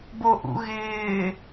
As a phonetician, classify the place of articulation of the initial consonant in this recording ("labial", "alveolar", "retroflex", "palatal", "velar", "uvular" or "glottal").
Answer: labial